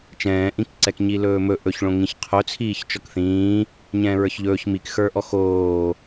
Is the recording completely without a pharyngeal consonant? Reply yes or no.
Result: yes